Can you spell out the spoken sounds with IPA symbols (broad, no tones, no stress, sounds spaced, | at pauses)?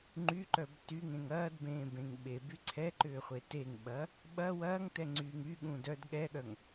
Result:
ŋ͡ǃ y ǃ œ b t y ŋ ẽ ŋ ɐː d b ẽː b ẽ ŋ ɓ e b y ǀʰ ɛ ǃ ʏː χʷ e t e ŋ ɓ ɐː | ɓ ɐ w ɐː ŋ t ɛ ŋ͡ǀ yː ŋ y ɠ ũ d œ d ɠ ɛ ɠ œ ŋ